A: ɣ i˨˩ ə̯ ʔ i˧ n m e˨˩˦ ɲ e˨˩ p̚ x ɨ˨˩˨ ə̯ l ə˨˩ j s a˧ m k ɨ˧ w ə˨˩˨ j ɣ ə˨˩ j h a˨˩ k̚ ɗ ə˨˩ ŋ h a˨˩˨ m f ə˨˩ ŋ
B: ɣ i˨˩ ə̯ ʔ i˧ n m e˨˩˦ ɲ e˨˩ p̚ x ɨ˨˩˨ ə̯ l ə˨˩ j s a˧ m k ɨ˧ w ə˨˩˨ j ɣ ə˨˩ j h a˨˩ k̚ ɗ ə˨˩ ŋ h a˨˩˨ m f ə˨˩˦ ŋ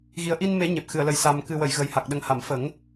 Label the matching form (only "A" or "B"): B